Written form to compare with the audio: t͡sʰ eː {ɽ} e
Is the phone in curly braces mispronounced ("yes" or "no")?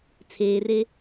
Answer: yes